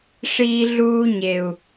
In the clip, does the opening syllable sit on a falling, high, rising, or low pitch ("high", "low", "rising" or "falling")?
high